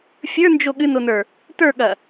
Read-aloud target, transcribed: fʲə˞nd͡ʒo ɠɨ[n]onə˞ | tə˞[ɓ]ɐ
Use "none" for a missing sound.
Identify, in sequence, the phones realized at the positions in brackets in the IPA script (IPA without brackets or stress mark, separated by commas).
n, ɠ